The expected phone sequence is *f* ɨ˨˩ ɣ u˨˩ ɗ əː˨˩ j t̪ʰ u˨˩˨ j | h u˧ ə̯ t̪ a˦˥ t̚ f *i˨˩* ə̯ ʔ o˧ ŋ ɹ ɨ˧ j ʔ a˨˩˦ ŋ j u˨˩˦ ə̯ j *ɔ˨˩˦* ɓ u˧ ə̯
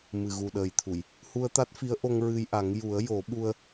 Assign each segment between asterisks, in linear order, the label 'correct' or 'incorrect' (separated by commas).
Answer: incorrect, incorrect, incorrect